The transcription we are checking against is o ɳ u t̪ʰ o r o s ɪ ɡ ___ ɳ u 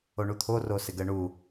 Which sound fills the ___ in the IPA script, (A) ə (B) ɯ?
A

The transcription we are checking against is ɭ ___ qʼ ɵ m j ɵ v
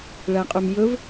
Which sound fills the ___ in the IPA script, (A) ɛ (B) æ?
B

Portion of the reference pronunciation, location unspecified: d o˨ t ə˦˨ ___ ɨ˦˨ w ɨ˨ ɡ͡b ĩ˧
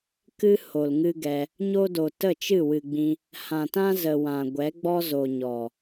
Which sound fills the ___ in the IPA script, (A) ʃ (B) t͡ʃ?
B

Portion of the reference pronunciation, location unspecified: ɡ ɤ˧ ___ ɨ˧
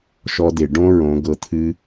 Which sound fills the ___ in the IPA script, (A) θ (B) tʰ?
B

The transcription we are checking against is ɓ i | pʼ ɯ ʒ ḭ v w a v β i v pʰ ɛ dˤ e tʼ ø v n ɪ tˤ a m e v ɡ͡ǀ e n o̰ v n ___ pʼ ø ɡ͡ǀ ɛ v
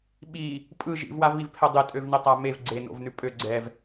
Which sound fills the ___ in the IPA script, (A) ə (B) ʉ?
B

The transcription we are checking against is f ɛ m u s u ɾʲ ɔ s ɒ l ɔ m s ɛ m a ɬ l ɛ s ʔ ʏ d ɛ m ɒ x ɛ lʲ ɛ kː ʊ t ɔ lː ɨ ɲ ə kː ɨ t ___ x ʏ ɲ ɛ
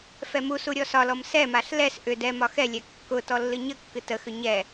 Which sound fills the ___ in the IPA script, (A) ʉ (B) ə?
B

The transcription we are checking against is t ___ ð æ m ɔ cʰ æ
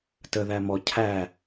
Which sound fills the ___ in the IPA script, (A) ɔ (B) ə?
B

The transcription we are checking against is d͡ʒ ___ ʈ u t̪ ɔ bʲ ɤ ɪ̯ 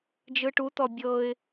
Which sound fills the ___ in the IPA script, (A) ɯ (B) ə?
A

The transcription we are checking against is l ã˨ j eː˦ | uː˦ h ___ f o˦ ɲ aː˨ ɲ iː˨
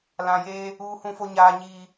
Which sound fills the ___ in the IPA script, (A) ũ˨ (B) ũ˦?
B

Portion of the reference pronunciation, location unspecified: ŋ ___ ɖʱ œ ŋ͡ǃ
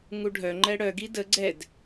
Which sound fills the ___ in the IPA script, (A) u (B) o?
A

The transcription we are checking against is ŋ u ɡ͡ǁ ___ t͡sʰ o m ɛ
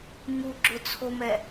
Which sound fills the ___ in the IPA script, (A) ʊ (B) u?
A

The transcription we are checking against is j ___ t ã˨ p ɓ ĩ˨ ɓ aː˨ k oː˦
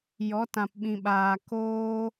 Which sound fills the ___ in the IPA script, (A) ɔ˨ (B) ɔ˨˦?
B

